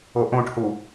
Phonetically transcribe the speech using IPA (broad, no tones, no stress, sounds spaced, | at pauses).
o ʔ õ ʈ h u